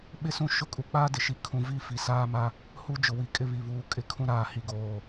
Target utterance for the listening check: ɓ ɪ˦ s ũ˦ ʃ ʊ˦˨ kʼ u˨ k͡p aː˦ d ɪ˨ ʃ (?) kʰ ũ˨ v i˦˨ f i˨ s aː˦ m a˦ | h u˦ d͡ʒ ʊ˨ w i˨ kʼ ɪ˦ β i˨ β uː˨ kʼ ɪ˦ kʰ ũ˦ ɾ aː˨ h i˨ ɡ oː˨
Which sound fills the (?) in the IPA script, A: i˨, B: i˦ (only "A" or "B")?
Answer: A